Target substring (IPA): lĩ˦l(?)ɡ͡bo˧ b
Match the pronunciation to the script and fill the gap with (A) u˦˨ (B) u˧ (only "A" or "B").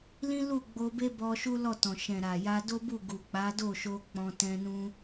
A